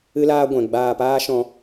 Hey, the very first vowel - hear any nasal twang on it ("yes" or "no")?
no